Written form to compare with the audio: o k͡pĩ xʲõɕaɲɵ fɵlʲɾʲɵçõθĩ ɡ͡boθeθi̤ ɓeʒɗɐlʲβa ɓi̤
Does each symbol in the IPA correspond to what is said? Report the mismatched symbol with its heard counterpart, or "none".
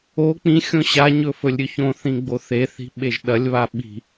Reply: none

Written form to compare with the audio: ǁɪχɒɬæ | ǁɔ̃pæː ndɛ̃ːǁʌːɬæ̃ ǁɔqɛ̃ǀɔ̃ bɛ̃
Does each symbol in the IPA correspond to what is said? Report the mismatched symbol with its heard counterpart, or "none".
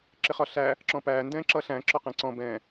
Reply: none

